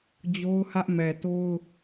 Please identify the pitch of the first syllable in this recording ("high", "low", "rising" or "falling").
high